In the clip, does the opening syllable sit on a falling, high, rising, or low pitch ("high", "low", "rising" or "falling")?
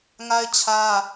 high